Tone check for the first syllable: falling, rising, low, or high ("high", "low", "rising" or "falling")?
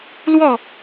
falling